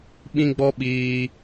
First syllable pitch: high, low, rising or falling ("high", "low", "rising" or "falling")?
high